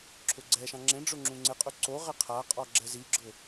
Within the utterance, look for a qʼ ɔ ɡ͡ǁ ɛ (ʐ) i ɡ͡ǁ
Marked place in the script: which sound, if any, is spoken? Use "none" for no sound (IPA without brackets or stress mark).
z